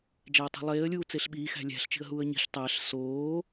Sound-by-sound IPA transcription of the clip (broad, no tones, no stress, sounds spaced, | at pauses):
d͡ʒ æ ə̯ tˤ i̤ lˠ eː ə̯ lʲ uː t͡s e ɬ ɓ iː x æ̤ lʲ æ̤ ɬ t͡ʃ i̤ ə̯ ɦ uː ə̯ ɲ i̤ ɬ tˤ æ ɬ s oː